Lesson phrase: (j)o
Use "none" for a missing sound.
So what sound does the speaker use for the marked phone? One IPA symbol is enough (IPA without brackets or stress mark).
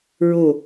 ɹ